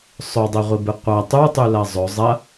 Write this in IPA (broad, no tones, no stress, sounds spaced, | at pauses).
sˤ ɵ dˤ e ʁʷ i b ɨ qʷ ɐ tˤ u tˤ ʉ l ɐ zˤ ɵ zˤ ɐ